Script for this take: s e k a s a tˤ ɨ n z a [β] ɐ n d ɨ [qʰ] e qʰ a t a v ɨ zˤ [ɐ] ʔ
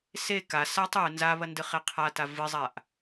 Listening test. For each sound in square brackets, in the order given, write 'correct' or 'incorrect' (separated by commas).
correct, incorrect, incorrect